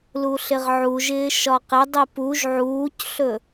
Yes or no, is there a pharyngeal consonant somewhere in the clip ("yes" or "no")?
yes